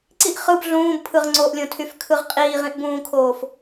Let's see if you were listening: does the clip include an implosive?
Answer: no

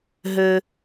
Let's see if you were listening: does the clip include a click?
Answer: no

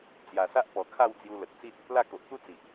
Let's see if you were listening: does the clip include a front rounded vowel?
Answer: no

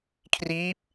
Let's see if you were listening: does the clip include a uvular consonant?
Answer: no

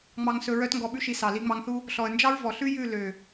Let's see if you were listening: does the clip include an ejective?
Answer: no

